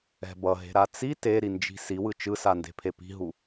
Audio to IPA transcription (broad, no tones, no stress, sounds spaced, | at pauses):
ɛ̤ b ʌ ɦ e̤ ɾ a t͡s i t e ɾ i n d͡ʒ i̤ s i w ɯ t͡ʃ ɯ s a n d e̤ pʰ e p i̤ ɦ u